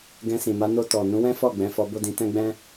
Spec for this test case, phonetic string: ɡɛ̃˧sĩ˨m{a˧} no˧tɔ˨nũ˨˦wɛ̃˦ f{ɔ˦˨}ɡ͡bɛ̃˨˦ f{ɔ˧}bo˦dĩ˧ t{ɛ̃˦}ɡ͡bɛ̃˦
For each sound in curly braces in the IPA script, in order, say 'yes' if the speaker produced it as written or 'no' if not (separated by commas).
yes, yes, yes, yes